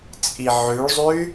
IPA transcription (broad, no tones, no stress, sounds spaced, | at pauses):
t͡sʼ i ʕ ʉ ɭ zˤ ʉ y̯